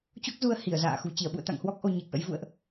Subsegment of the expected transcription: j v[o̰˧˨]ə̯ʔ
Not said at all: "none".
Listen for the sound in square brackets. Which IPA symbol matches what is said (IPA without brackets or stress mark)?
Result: ṵ˧˨